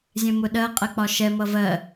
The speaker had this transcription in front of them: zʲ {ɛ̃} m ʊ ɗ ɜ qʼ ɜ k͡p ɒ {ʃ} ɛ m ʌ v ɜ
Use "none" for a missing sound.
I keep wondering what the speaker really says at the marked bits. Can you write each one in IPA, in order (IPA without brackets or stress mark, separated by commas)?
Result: ɛ̃, ʃ